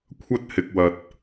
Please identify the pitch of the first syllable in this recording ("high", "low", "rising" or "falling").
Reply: high